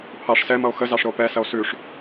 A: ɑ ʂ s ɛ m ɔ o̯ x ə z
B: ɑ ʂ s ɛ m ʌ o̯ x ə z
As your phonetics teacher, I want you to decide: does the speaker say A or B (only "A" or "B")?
B